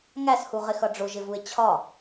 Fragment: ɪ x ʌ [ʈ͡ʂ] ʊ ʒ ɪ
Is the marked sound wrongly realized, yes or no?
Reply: yes